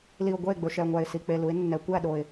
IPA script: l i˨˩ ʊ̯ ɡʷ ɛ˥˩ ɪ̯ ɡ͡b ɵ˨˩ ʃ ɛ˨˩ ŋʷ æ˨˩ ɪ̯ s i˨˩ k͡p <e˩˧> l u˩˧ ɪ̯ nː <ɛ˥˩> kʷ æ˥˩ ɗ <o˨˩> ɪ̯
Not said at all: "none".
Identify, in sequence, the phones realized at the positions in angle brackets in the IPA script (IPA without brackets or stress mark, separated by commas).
e˨˩, ɛ˩˧, o˨˩